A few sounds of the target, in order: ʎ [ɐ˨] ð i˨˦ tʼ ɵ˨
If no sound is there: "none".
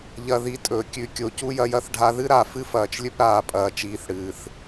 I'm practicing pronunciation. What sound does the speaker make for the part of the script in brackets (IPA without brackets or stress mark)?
ɐ˨